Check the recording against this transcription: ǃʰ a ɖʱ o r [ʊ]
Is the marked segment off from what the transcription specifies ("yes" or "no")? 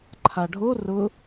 no